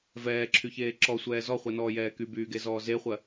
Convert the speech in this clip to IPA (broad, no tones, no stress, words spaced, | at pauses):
vɛːǁʰyçeː ǁɔsʷɛː zɔχʷɛnɔːjɛː kybyːɡezɔː zeχʷɜ